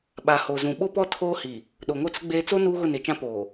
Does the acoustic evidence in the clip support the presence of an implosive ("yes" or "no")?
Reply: yes